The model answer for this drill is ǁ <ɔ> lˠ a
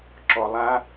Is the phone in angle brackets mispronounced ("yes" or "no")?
no